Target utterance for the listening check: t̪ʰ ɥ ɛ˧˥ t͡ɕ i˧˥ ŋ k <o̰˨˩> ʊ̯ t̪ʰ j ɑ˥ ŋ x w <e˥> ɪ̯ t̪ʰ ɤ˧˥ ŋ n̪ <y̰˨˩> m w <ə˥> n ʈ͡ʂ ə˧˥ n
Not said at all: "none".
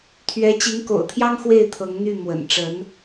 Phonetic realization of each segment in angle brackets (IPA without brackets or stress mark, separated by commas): o̰˨˩, e˥˩, y˥˩, ə̰˨˩